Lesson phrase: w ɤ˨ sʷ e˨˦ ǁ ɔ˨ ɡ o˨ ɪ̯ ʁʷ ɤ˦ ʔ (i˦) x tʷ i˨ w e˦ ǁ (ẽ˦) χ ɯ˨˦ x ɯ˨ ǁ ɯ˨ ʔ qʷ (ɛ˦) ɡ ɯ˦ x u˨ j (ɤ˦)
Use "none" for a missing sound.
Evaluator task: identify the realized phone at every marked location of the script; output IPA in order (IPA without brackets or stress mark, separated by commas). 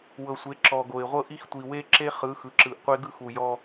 i˦, e˦, e˦, ɔ˦